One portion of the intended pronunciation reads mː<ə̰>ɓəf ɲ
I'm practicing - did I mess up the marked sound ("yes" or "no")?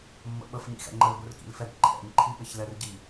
no